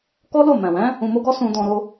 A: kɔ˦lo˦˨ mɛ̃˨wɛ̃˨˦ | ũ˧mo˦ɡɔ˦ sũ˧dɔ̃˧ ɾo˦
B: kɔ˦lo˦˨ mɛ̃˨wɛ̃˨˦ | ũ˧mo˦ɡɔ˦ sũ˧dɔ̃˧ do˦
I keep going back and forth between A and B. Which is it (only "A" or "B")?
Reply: A